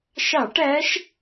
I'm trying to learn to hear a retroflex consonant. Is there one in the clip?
yes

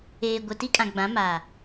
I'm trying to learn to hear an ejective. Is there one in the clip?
yes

